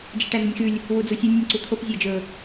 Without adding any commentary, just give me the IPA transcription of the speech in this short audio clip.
d͡ʒeʈæn̪unʲxʉlʲ | wud͡zusʲʉ nʲunʲǀut̪ʰop zʲæd͡ʒɵ

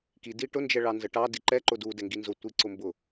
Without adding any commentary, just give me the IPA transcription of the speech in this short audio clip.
ki diʈʊ nd͡ʒɛɭɑnzəʈɑ diǃɛ ǃʊdu dɛŋɡinzʊ tʷiǀʊmbʊ

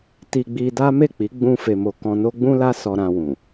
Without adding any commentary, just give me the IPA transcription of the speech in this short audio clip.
ti˧ɡ͡bi˧da˦ me˦˨k͡pi˨˦ ɡ͡bũ˧ fe˨mo˨ kɔ̃˧no˦ ɡ͡bũ˦la˦ sɔ˧ɾã˧wũ˨

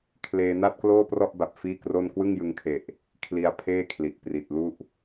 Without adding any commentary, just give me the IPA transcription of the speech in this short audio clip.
kʰleː˧na˥˩t̚kloː˥˩prɔ˥˩ʔ ba˨˩p̚ fiː˥˩kro˥˩n kwɯ˥˩ŋjɯ˧ŋkʰe˨˩ʔ | kʰli˧a̯pʰeː˥˩kʰli˨˩ʔ pri˨˩t̚lu˥˩ʔ

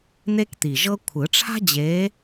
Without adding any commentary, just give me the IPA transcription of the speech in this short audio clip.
n̪e˥kt̪i˨˩ʒɤ˥ kʷʰɯ˨˩˦ʈ͡ʂʰa̤˥d͡ʑe˧˥

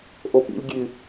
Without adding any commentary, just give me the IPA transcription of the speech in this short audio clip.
ʔopḭlʲ ɡʲʉ

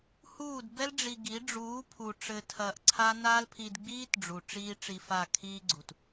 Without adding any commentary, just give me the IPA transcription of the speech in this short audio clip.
huː˦˨dbɛ˦lɖ͡ʐi˧ɡi˨˦ ɖ͡ʐuː˨˦pʰu˨ ʈ͡ʂɘ˨ tʰɐː˧ʔǀʰa˦ naː˦lpʰi˧d ɡ͡biː˦tɖ͡ʐu˨ ʈ͡ʂiː˦ʈ͡ʂi˧fa˦˨ kʰiː˦ ɡ͡ǀu˨t

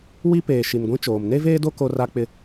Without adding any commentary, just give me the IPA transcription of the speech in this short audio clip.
wi˦peː˨ ʃi˨n ɡʷĩ˦t͡ʃoː˨m ne˦veː˦do˦ ko˦ra˦k͡pɪ˦

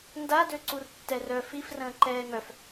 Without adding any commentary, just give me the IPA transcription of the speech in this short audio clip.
ndadøǀur tːɛrœ fif rə̃ːǃɛːŋœf

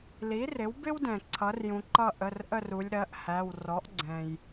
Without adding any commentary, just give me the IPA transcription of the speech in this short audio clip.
li˩˥rɪ˩˥wbɪ˥wdɛ̃˩ ǀʰʌ˩˥rjũ˩˧ǃʌ˦˨ ʔə˩˧˩rʔə˦˨ru˩˧lʲ ɾɜ˩˥ʔhæ˩˧˩w rɔ˩˥ʔɡ͡ǀɛ̃˩j

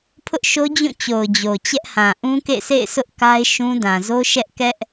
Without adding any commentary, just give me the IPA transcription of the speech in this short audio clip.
pʰʊ˦ʔʃo˦d͡ʑũ˦˨t͡ɕo˨ʊ̯ d͡ʑo˨t͡ɕɛ˦ʔhã˨ ʔũ˦kḛ˦˨sḛ˦˨ɪ̯sʊ˦ʔ ka˦ɪ̯ʃũ˦ dã˨zo˦ʃɛ˦ʔ kɛ˦ʔ

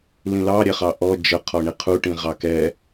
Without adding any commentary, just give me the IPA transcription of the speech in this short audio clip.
lĩlɑ ɾʲɛχɑʔɔ d͡ʒə qʰɔɳiqʰu ʈĩʁɑkɛ

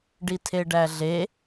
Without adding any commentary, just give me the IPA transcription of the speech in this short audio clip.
ɖitʰeɖæɮe

